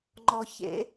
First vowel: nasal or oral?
oral